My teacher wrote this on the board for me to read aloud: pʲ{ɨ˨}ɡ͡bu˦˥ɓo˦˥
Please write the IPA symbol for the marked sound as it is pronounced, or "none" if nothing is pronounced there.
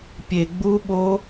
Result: e˨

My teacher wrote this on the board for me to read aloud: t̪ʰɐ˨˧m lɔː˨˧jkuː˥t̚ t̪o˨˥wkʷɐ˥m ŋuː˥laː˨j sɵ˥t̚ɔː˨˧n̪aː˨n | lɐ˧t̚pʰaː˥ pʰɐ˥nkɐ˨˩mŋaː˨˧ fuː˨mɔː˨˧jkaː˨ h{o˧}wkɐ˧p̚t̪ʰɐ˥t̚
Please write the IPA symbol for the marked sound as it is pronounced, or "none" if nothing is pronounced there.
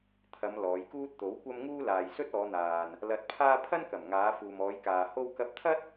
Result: o˧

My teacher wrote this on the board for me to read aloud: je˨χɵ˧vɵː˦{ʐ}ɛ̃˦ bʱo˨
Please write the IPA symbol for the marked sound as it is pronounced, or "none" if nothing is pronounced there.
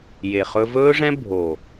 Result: ʐ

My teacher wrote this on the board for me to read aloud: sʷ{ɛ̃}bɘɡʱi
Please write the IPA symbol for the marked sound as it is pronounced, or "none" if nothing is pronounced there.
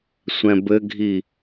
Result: ɛ̃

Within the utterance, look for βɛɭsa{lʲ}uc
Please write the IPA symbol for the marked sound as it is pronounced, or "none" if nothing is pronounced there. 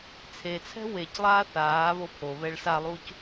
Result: lˠ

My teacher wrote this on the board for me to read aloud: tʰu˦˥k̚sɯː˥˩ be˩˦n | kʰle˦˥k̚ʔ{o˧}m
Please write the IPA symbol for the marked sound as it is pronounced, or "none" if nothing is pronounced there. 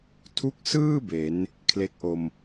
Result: o˧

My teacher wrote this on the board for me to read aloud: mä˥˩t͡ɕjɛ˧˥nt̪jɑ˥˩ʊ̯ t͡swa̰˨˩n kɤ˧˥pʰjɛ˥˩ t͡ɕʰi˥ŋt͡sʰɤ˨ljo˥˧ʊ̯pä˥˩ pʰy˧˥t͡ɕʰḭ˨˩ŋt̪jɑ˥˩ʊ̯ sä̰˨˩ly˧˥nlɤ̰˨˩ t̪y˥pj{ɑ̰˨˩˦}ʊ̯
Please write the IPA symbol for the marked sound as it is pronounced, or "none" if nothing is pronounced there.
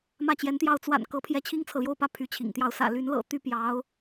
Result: ɑ˧˥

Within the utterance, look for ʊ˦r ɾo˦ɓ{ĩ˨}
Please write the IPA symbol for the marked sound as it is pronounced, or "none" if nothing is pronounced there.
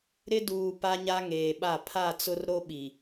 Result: i˨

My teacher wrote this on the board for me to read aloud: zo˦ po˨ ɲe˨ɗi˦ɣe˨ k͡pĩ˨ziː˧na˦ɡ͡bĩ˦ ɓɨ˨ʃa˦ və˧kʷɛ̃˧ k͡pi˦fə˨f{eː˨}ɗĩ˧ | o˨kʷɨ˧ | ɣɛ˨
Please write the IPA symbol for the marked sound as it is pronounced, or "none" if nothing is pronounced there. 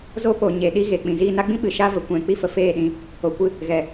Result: eː˦˨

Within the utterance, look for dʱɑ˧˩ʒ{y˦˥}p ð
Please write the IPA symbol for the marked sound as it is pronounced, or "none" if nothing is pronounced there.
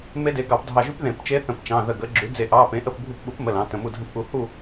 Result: y˦˥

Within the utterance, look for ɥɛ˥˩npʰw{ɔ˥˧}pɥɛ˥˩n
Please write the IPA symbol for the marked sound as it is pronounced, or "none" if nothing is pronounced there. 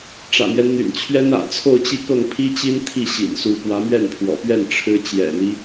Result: ɔ̰˨˩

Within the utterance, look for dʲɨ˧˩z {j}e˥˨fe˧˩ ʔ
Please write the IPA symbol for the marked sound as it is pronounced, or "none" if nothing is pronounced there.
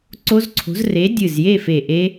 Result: j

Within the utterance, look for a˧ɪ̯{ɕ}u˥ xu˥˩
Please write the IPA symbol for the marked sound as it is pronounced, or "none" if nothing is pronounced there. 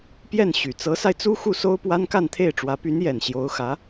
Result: t͡s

